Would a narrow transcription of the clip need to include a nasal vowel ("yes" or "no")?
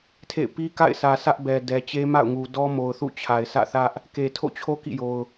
no